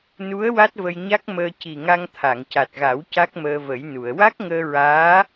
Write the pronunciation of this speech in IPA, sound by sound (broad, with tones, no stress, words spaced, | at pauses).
nu˧˥ə̯ wa˦˥t̚və˧jɲa˦˥k̚məː˧ ci˨˩ ŋa˧ŋt̪ʰa˨˩˨ŋca˨˩t̚ɣa˨˩˦w ca˦˥k̚məː˧ və˨˩˦jnu˨˩˨ə̯ wa˦˥k̚ŋəː˧ɹaː˧˥